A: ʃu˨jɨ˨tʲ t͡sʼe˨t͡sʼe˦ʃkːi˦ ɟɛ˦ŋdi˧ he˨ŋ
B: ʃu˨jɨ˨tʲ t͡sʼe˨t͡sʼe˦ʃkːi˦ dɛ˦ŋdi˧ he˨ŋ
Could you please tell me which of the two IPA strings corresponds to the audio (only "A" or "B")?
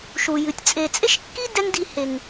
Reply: B